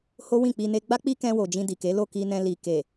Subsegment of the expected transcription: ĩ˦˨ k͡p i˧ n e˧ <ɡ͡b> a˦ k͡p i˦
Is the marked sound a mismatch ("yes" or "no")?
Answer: no